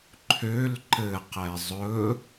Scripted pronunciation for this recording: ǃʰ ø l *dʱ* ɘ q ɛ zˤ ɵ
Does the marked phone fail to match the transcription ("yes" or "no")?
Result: yes